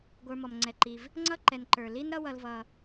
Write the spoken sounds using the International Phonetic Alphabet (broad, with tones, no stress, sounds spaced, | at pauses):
ɡʷ ə˞˨ m ɔ˩ m ŋ͡ǀ ɛ˩ ǃ i˩ v | ŋ͡ǀ ʌ˥ ǃ ɛ˨ n ǃ ə˞˩ l i˦ n ɾ ʌ˦ w ʌ˨ l v ʌ˩